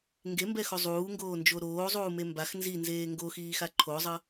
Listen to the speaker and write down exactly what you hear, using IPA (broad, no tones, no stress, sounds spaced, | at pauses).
ŋ ɡ e m b ɛ x o zˤ uː ŋ ɡ oː n d͡ʒ o ɾ oː zˤ uː m e m b a x n z i n z eː ŋ ɡ o x iː x a ǃʰ o zˤ ʌ